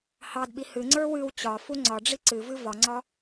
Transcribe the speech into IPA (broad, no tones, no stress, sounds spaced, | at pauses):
h ɑ d ɓ i h ɨ ŋ͡ǀ ə˞ w ɨ w t͡ɕ ɒ f u ŋ͡ǀ ɒ ɖ͡ʐ i ǀ ɨ v ɨ v ɒ ŋ͡ǀ ɒ